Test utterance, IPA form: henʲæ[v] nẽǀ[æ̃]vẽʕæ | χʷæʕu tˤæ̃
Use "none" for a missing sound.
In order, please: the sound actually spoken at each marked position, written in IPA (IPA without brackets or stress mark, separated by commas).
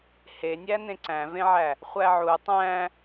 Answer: none, æ̃